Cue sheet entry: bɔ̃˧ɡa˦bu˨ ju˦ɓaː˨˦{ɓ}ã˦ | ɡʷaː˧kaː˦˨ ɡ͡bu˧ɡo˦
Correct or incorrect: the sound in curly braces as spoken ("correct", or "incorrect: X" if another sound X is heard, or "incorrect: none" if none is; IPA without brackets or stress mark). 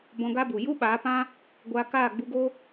incorrect: p